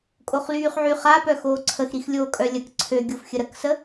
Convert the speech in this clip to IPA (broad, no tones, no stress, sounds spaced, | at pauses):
kʼ o χ l yː χ ʕ y χ a p œ x oː ǀʰ ə x ɾ i x lʲ oː kʼ œ lʲ ə k ǀʰ ø ɡʲ o f xʲ ə ɾ ə k s ə